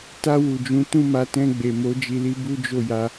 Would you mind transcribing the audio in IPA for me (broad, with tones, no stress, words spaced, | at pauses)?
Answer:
ta˧ wu˨d͡ʒũ˨˦ tũ˦˨ma˨˦tɛ̃˧ ɡ͡be˨mo˨˦ d͡ʒi˧li˦ bu˦d͡ʒo˦˨ja˧